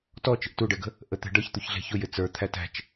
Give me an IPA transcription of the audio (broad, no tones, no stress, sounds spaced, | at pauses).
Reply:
t ɔ t͡ʃ ə̤ ʔ t u ɖ ɛ ɡ ə̤ | ʔ ə t̪ ɛ̤ ɖ ʌ ç t̪ u ç ɮ ɛ̤ ç ʊ j ɪ t͡s ə˞ t̪ʰ æ t æ̤ t͡ʃ